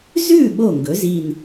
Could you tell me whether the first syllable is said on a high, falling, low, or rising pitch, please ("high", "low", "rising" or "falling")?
falling